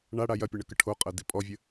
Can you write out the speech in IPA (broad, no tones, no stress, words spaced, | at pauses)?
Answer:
ɳaɽa jɐpʲɐɳəkə ʈʰo qʼɐdipʼɔvʲə